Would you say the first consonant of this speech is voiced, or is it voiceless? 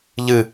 voiced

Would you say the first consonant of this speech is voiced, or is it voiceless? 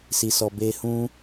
voiceless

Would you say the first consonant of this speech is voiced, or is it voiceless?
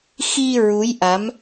voiceless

